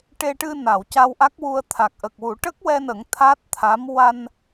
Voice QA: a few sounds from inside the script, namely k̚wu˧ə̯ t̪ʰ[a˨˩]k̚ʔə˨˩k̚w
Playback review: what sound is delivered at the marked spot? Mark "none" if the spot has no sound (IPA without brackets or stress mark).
a˨˩